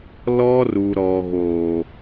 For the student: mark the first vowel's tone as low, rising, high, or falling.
high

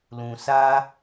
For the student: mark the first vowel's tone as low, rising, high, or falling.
low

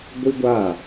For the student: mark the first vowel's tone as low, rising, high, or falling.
high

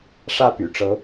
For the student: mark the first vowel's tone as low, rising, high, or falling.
falling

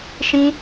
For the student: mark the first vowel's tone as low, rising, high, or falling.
high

